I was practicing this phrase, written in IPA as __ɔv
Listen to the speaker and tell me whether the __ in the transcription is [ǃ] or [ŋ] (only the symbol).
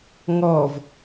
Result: ŋ